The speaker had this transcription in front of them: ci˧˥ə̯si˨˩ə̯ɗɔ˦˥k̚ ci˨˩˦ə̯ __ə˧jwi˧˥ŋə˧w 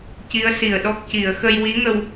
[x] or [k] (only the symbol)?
x